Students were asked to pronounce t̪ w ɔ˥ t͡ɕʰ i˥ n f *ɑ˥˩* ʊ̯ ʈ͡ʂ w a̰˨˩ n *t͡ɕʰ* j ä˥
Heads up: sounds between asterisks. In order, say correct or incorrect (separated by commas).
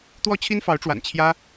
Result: incorrect, correct